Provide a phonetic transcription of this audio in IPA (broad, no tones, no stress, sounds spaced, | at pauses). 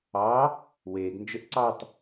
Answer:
ɑ | w eː ɡ n d͡ʒ ə ʔ ǀ ɑ tˤ